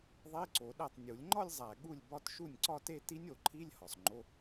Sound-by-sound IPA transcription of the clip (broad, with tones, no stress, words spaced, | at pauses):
ðˤe˧˥˧ǀo˨˩˦ɗæ˥˩tˤ nʲu˨˩˦lʲŋ͡ǃɒ˥˧lʲzˤæ˨˩ ɠu˥˩lʲbɒ˥˧t ʃu˥˩nʲǀɒ˥˧te˥˧ ti˦˥nʲo˨˩˦ǃʰi˧˥˧lʲ hɒ˨˩sˤŋ͡ǃo˧˥˧